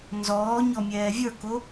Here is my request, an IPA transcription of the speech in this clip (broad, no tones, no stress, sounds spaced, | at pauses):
n z ɔː ɲ ɔ mʲ ɛː vʲ ə˞ k o